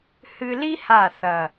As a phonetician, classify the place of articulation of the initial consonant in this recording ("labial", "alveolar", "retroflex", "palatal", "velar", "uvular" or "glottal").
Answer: glottal